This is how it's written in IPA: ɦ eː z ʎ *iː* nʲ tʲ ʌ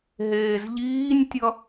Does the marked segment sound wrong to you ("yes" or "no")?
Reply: no